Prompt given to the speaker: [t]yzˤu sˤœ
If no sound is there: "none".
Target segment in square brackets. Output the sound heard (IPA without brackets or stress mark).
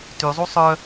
t